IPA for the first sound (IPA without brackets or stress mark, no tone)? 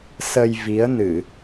s